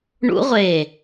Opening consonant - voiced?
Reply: yes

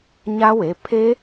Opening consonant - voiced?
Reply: yes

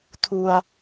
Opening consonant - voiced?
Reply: no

